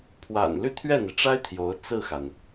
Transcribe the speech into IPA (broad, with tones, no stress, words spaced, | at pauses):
pʰwa̰˨˩n ly˥˧t̪ʰɥɛ˥˩n̪i˩ʈ͡ʂa˥ɪ̯ t̪ʰjo˧˥ʊ̯ t͡sɹ̩˥˩xa˩n